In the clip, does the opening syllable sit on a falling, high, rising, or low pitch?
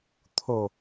low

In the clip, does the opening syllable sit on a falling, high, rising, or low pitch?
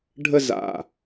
high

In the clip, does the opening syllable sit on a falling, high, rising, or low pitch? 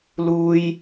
high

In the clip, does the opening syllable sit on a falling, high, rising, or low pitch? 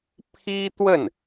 high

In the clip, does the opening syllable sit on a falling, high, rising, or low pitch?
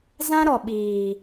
high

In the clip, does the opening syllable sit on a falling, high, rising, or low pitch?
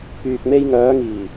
low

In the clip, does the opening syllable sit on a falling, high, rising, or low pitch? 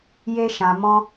high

